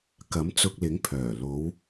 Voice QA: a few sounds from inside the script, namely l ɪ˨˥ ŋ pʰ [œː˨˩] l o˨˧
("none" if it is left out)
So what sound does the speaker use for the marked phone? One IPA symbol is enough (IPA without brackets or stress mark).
œː˨˩